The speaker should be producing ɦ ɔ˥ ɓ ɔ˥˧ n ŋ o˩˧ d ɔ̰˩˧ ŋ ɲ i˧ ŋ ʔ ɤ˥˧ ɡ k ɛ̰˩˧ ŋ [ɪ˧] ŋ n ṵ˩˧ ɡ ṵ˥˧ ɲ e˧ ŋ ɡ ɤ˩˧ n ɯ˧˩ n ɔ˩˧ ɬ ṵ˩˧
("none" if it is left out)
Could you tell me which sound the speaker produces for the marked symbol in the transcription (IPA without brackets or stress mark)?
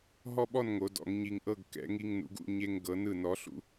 i˧